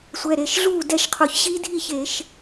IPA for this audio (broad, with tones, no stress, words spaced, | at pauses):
sʷɛ˩˧˩ɾe˩˧˩ʃ ɮuː˥˨dɛ˥˨ʃqʰo˧˩˧çɕi˦˥ dʱi˥˨çeː˧˩˧ʃ